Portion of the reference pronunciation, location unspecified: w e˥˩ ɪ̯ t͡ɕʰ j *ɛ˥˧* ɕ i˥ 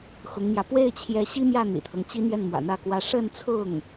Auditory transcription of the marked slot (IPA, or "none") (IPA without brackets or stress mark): ɛ˧˥